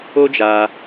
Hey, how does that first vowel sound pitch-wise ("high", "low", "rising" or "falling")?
high